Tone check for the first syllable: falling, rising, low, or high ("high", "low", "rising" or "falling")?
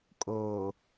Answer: low